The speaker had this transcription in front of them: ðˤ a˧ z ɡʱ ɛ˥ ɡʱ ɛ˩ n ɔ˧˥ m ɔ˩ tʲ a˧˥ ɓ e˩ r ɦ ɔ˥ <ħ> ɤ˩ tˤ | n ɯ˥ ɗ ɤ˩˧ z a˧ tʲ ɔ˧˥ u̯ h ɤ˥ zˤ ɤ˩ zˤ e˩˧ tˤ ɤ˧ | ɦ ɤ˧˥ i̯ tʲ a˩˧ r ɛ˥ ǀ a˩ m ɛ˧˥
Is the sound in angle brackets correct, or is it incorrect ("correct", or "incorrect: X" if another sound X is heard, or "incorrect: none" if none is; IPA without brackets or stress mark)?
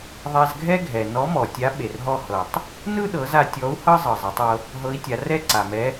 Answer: incorrect: h